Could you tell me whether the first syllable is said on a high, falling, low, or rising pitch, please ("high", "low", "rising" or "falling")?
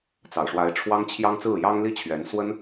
low